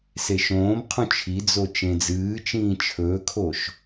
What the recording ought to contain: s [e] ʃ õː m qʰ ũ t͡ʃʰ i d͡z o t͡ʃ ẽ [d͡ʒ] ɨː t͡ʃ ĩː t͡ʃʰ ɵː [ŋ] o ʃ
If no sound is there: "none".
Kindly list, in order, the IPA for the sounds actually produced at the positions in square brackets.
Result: e, d͡z, kʰ

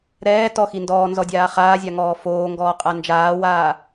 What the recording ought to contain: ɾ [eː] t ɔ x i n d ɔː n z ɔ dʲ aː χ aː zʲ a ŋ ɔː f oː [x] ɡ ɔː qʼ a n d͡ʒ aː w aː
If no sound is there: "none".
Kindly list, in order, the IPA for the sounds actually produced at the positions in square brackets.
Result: ɛː, ŋ

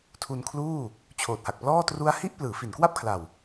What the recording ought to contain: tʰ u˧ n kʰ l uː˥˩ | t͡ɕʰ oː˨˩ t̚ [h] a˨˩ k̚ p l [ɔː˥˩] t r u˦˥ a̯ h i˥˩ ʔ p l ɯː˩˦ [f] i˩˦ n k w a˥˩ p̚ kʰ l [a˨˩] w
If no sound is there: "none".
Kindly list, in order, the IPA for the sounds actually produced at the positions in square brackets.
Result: h, ɔː˥˩, f, a˨˩

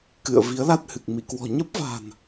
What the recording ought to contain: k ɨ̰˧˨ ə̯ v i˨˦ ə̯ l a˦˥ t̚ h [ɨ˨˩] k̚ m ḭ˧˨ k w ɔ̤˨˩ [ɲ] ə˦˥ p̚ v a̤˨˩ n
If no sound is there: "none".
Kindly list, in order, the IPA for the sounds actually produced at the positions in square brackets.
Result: ɨ˨˩, ɲ

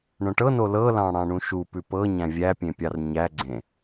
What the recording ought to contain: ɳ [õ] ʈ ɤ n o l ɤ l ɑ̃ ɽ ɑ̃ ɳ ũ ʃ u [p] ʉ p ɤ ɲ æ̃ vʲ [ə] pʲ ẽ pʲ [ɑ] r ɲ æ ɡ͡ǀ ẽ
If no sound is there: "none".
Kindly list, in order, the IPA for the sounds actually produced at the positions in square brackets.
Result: õ, p, æ, ɑ

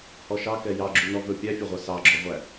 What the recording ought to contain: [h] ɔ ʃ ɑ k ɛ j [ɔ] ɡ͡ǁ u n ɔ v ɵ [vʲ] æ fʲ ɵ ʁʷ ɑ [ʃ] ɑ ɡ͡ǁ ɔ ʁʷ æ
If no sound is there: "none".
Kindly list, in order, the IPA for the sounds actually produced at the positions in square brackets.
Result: h, ɑ, pʲ, s

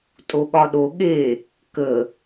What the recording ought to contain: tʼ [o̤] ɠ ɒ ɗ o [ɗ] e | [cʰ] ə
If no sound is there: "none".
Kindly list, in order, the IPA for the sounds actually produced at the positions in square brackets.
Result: o, ɠ, k

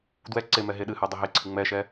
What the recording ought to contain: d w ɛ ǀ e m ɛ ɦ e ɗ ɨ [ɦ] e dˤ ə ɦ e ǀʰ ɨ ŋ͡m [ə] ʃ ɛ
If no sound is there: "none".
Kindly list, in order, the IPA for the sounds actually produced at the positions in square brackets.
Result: h, ɛ

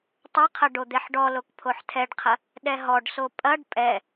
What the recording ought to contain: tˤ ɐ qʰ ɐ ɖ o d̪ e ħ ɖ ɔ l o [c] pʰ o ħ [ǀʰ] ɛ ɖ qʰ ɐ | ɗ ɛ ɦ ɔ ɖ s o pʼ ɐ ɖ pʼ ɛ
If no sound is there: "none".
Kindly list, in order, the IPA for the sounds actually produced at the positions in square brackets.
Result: k, tʰ

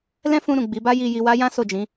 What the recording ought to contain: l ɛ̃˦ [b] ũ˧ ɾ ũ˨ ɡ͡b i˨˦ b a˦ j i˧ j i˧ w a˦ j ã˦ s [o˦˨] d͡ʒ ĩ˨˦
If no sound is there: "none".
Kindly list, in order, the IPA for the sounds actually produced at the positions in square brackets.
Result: f, o˦˨

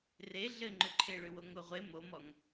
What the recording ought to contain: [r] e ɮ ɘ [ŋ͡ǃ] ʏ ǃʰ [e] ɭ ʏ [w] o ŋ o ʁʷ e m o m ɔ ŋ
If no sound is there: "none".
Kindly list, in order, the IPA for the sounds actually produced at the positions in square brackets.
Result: r, ŋ͡ǃ, e, w

